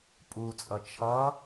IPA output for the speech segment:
pʼ u t͡sʼ ʌ t͡ʃʰ ʌ

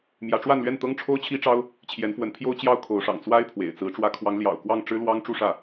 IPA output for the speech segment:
m j ä˧˥ ʈ͡ʂ w a˥˧ n l ɥ ɛ˥˩ n t̪ ɤ˥ ŋ ʈ͡ʂʰ o˥ ʊ̯ t͡ɕʰ i˥ ʈ͡ʂ ɑ˥ ʊ̯ | t͡ɕʰ j ɛ˧˥ n f w ə˧˥ n pʰ j o˥ ʊ̯ t͡ɕ j ɑ˥ ʊ̯ kʰ o˧˥ ʊ̯ ʂ ɑ̰˨˩ ŋ t͡s w a˥ ɪ̯ pʰ w ḛ˨˩ ɪ̯ t͡s ɹ̩˧˥ ʈ͡ʂ w ä˧˥ kʰ w ɑ˧˥ ŋ l j ɑ̰˨˩ ʊ̯ k w ɑ˥˩ ŋ ʈ͡ʂ ɻ̩˥ l w ɑ˥ ŋ ʈ͡ʂ u˥˧ ʂ ä˥˩

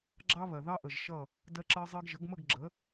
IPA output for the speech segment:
ɡ͡ǁ ɑ˦ β ɜ˩ ð ɑ˦ ʔ ə˩ ʒ ʃ ʌ˥˨ | d ɜ˦ ǁ ɜ˦ zˤ ɜ˦ ɡ ʒ ə˩˥ ɡ m ə˥˨ ɡ ɡ͡ǁ ə˩˥

